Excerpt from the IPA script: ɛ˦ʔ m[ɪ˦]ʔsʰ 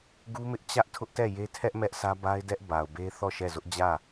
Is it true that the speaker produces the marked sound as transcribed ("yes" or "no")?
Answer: no